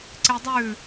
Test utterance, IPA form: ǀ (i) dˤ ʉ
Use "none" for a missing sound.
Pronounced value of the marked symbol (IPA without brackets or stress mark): e